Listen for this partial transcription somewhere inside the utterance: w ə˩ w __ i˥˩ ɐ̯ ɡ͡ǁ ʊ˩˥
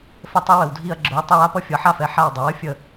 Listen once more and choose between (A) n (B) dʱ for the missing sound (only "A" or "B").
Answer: B